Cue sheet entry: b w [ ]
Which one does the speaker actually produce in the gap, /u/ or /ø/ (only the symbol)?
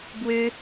ø